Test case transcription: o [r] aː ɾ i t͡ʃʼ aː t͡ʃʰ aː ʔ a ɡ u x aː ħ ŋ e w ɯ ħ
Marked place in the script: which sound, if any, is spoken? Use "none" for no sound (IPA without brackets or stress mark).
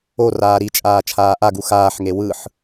r